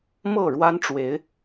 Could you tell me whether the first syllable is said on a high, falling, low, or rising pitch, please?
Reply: falling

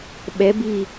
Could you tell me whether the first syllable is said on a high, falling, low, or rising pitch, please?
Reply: rising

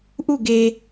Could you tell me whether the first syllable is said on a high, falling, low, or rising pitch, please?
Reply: falling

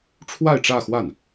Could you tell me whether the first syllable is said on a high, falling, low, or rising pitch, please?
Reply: falling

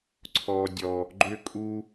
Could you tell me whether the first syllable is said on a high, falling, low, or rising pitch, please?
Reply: high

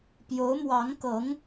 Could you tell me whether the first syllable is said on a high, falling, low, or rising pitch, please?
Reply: rising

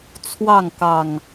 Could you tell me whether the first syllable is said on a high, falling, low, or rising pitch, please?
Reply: falling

